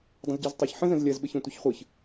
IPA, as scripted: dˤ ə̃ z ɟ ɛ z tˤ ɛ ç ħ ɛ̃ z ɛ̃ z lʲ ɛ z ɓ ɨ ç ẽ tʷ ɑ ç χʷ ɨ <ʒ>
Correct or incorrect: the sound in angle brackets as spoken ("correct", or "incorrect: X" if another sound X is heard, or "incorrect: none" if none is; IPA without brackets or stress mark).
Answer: incorrect: ç